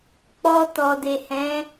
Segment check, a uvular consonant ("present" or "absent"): absent